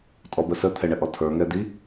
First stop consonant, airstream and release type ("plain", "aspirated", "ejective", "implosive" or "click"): ejective